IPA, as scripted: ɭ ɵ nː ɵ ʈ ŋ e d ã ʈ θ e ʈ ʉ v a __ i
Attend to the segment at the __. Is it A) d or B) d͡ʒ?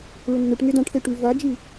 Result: B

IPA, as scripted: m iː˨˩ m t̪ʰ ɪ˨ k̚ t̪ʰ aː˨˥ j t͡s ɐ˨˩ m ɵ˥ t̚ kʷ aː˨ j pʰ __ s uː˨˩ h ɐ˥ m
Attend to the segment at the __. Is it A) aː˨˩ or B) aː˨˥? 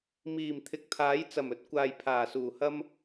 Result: A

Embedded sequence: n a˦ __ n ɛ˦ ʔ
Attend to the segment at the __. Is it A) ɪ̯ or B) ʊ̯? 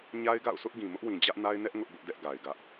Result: A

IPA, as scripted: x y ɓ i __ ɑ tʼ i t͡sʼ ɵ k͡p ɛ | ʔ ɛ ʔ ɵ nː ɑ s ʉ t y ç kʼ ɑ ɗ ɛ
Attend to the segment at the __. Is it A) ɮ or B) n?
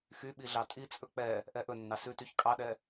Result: A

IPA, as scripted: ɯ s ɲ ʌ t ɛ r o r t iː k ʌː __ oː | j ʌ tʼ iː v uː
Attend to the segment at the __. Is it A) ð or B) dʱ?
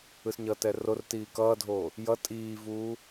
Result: B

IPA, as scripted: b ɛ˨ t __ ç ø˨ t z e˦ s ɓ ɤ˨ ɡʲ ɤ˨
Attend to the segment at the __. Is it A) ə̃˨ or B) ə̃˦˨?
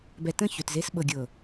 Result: B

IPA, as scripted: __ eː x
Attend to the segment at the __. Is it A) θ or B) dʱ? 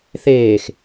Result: A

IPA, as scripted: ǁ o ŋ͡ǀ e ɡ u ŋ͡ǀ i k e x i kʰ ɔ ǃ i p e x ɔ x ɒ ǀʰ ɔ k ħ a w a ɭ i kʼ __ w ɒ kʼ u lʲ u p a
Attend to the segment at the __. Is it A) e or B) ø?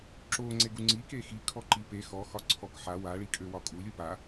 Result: B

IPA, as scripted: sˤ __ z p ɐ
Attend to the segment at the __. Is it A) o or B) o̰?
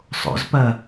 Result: B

